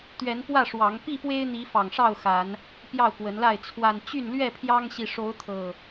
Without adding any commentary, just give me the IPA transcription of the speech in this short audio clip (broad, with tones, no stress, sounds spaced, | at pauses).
t̪ ɥ ɛ˨˦ n p w ä˥˨ ʂ w ɑ˨˦ ŋ p i˥˨ p w e˦ ɪ̯ n̪ i˨˦ f ɑ˨˩ ŋ ʂ ɑ˥˨ ʊ̯ x a˨˦ n | p j ɑ˥˨ ʊ̯ k w ə˨˦ n l a˥˨ ɪ̯ t͡sʰ w a˨˩ n t͡ɕ y˥˨ n l ɥ ɛ˥˨ pʰ j ɑ˦ ŋ ɕ i˨ ʂ o˨˦ ʊ̯ t̪ʰ ɤ˨˩